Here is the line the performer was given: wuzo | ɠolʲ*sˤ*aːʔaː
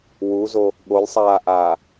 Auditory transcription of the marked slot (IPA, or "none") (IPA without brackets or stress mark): sˤ